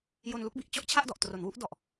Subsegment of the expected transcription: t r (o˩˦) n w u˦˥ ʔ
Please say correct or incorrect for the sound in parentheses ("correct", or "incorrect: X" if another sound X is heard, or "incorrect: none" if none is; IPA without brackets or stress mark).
correct